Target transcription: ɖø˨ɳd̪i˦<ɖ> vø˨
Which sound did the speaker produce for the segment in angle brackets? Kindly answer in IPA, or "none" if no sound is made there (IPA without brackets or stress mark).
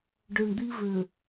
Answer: none